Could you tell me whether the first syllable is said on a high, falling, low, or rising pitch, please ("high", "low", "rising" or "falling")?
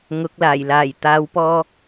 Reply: rising